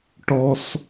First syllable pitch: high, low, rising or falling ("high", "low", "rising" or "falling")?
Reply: high